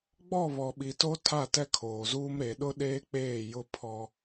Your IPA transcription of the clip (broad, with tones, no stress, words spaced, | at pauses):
ɡ͡bɔ˦˨βɔ˨ɓi˨to˦ tʰa˦˨tɛ˦kʰoː˨zuː˦m ɾe˨ɗʊ˦ɗeː˦k͡peː˦˨ jʊ˦pʰɔ˦